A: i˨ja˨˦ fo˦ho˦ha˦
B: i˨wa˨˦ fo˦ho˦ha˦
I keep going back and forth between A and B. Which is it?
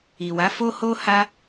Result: B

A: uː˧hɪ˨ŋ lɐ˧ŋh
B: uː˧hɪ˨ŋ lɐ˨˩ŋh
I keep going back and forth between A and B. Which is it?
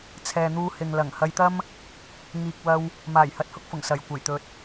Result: B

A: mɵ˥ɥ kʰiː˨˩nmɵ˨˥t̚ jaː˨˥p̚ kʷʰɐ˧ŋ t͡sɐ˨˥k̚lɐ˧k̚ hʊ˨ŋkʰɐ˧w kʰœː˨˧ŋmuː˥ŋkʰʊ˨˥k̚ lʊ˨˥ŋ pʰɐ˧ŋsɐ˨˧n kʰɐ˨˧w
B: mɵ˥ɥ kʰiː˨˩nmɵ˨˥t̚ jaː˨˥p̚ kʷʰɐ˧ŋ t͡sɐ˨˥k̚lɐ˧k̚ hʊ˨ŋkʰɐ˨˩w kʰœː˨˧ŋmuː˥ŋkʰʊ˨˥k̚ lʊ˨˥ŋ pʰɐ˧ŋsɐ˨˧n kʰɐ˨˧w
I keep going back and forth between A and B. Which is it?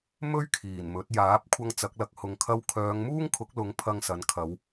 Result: A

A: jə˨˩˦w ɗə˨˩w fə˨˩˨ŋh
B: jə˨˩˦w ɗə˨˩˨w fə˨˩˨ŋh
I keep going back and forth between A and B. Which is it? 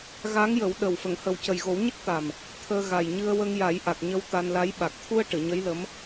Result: A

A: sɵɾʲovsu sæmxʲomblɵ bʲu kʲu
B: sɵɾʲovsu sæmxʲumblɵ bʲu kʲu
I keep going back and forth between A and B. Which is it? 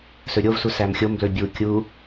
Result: A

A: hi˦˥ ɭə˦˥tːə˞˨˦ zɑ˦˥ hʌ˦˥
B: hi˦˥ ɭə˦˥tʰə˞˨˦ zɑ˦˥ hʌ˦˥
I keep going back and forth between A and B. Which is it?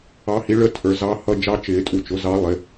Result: B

